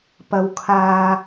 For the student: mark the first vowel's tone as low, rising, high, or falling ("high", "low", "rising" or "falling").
high